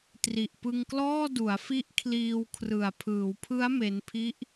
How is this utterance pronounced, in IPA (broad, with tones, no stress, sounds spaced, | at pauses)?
t r i˨˩ ʔ p ɯ˧ ŋ k l ɔː˥˩ d u˩˦ a̯ f i˦˥ ʔ kʰ l iː˧ w kʰ r ɯ˨˩ a̯ pʰ ɯː˩˦ w pʰ ɯ˦˥ a̯ m e˦˥ n pʰ i˦˥ ʔ